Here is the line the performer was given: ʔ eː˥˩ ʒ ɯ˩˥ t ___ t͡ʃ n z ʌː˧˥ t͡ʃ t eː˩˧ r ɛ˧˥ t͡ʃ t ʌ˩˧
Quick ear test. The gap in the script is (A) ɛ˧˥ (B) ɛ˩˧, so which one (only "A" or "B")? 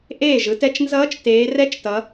A